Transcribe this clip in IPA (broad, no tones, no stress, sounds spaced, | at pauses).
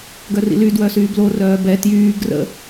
ɡ œ r ḭ l y d w œ s yː b l o r œː b ɛ t j yː ɡ r ə̰